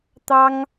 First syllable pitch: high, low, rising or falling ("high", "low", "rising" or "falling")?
high